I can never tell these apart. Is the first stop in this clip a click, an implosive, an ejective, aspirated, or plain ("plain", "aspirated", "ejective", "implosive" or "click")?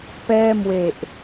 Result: plain